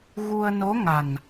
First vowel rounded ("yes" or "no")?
yes